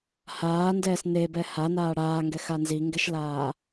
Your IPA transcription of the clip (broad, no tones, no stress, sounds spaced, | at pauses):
h aː n d ɛː s n e b ɛ h a n aː ɽ aː ŋ ɡ ɛ x a n z i ŋ ɡ ɛ ʃ l aː